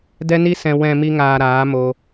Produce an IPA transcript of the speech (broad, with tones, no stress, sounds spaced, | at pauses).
d ɛ˧ n i˧ s ɛ̃˨ w ɛ̃˨ m i˧ ŋ aː˨ ɾ aː˨˦ m o˧